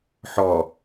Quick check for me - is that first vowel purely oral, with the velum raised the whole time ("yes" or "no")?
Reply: yes